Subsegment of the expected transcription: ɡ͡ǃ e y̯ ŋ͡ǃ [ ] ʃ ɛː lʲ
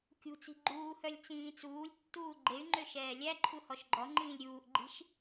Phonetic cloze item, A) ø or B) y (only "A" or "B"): A